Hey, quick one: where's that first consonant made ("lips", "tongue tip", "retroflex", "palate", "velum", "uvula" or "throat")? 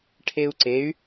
retroflex